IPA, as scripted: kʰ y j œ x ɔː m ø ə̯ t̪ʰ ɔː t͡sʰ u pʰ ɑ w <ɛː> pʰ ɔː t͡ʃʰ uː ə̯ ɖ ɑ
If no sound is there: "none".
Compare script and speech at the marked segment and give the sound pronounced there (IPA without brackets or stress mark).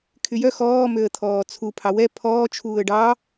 ɛ